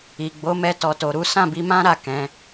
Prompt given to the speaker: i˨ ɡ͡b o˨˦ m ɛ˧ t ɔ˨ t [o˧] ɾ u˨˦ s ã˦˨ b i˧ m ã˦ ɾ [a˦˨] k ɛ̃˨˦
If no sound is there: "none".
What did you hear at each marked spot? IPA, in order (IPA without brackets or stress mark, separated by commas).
o˨, a˦˨